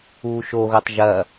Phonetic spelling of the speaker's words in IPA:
uː ʃ o ɣ o tˤ ʒ ɐː

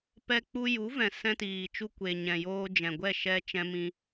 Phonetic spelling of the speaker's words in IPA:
p ɛ˧ k͡p u˧ j u˨˦ v ɛ̃˨ s ɛ̃˦ t iː˨ t͡ʃ u˦ kʷ e˨ ɲ ɛ̃˨ j oː˧ d͡ʒ ɛ̃˨ ɡʷ ɛ˦˨ ʃ ɛ˧ t͡ʃ ɛ̃˧ m ĩ˧

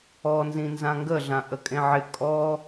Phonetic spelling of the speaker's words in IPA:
ɔ n z ĩ n z ã ŋ ɡ ə ɮ ã ʔ ə kʼ ẽ ʕ ɪ kʼ ɔ

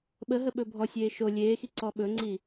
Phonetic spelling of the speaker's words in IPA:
ɓ ə ɦ ə ɓ ɵ bʱ ɔ sʲ eː ʃ o lʲ eː x i ǀ ɔ ɓ ɵ ŋ͡ǀ i

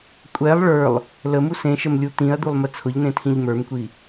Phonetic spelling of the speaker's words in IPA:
kʷʼ ɛ lˠ ɭ ə˞ lˠ | l ə m u s ẽ ʃ ə m lʲ u t̪ ĩ ɐ̯ d̪ u lˠ m ə t͡sʰ ʊ ʎ n̪ ẽ tʰ ĩ ʎ m ə˞ m kʷ i

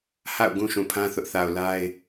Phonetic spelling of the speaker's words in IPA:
h a̰˦˨ ʊ̯ ɡ ũ˦ ʃ ũ˨ pʰ ã˦ θ ʊ˦ ʔ θ a˨ ʊ̯ l a˦ ɪ̯

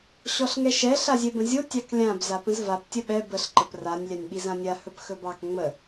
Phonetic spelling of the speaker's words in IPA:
ɕ ɔ ɬ ŋ ɛ ʃ ɛ ɬ a zʲ ɛ b ə̃ zʲ o tʲ ɑ k lʲ ã b z a p ə̃ z v a p tʲ ə ɓ ɛ b ə ɬ ǃ ə p r a nʲ lʲ a nʲ ɓ i z ã nʲ a h ɵ p x ɵ b ɑ k ŋ͡m ə

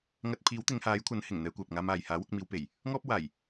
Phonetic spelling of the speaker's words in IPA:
ŋ ɐ˥ t̚ pʰ iː˨˥ w t̪ ɪ˨˧ ŋ h aː˨˥ j kʷʰ ɐ˨˥ n h ɪ˨˩ ŋ n̪ ɛː˧ kʷ œː˨ p̚ ŋ aː˧ m aː˨ j h aː˨˥ w ʊ˧ k̚ m iː˨˧ w p e˨˩ j | ŋ ɔː˥ p̚ ɐ˨ w aː˨˩ j

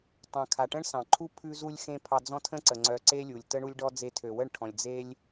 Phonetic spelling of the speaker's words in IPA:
tˤ œ̃˨ kʰ a˨ ʈ ə̃˦ ɳ s ɑ̃˨ ǃʰ u˦ pʰ ʉ˧ z u˧ lʲ x ẽ˧ pʰ ɑ˧ d͡z ɔ̃˦ tʰ ə̃˦ ǀ ə˨ ŋ͡ǀ œ˧ ǀ e˦ lʲ u˨ lʲ t ə˦ ɳ u˦ lʲ ɖ ɔ˦ d͡z e˧ tʰ ø˨ w ə˦˨ ɳ ʈʰ ɔ̃˨ lʲ d͡z e˦ lʲ

